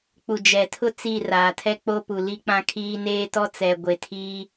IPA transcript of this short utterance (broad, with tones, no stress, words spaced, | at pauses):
k͡pu˨d͡ʒɛ˨tʰʊ˦ t͡si˦˨raː˨tʰɛ˦k͡po˦ pu˨li˦k͡pã˦kʰiː˦ neː˦tɔ˦ t͡sɛ˨ɡʷe˨ tʰi˦